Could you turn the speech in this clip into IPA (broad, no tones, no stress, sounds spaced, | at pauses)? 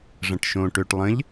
ʐ ɐ̃ ʈ ʃ õ ʈ ø ʈ lˠ ə̃ ʎ